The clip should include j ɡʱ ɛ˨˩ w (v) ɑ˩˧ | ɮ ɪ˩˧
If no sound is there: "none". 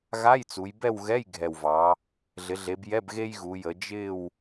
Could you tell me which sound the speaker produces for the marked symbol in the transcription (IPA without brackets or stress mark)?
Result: v